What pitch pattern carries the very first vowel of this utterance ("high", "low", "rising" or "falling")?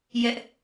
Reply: high